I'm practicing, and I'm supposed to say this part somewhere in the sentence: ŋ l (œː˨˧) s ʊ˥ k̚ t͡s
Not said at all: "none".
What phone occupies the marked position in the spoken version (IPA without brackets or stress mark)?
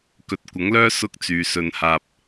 œː˥